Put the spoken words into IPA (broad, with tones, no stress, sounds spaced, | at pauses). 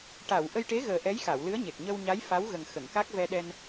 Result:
ʈ a˨˩˨ w ʔ ə˧ j ʈ e˧˥ ɣ əː˨˩ ʔ ɛ˧˥ j x a˨˩˨ w l ɨ˧˥ ə̯ ɲ e˨˩ k̚ ɲ ə˧ w ɲ a˧˥ j f a˧˥ w ɣ ə˨˩ ŋ x ə˨˩˨ ŋ k a˦˥ k̚ v ɛ˧ ɗ ɛ˧ n